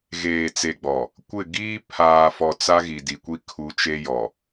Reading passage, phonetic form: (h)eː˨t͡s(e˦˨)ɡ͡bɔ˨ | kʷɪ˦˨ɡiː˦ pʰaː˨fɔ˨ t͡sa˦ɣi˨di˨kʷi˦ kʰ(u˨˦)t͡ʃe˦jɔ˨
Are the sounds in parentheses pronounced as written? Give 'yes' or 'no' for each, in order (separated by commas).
no, no, yes